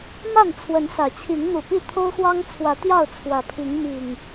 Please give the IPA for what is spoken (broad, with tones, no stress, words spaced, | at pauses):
ma˥˨n t͡sʰwə˨˦n sä˨˦t͡ɕʰi˨˦ŋ n̪u˨˩pi˥˨ t̪ʰo˦ʊ̯xwɑ˦ŋt͡sʰwä˨˦ t̪jɑ˥˨ʊ̯t͡sʰwä˨˩pʰi˨˦ŋ mi˨˩ŋ